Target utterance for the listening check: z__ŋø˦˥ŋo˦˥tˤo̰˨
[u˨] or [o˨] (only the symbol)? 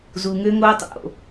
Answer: u˨